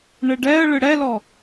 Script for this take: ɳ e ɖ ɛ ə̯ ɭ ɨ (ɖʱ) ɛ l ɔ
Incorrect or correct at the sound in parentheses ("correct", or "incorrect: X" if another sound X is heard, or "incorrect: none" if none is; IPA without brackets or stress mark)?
incorrect: ɽ